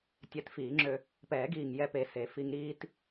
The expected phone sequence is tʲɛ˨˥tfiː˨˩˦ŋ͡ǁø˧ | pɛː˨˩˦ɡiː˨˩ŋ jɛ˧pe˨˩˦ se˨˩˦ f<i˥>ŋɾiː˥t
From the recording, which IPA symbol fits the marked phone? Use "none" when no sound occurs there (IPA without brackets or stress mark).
i˧